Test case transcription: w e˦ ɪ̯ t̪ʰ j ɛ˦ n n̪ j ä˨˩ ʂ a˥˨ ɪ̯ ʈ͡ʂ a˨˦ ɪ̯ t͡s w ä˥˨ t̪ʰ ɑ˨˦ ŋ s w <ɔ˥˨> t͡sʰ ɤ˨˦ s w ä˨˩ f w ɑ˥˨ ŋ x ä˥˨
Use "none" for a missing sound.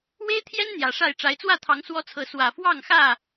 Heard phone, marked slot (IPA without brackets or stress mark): ɔ˦